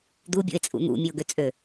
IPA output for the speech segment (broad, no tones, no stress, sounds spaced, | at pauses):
d̪ u bʲ ṵ e̯ t͡sʼ ṵ n̪ ṵ mʲ e o̯ ɡ ø t͡sʼ ø